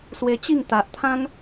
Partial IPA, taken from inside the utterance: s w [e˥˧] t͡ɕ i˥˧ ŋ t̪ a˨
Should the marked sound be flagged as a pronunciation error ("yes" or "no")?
yes